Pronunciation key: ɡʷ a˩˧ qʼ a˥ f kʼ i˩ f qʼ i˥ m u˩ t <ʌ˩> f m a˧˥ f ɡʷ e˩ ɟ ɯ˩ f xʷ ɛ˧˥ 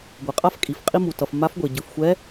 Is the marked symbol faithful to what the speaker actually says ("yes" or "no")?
yes